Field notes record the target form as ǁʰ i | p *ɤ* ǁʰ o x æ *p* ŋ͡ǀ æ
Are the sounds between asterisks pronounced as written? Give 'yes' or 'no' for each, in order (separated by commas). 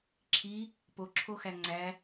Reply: no, no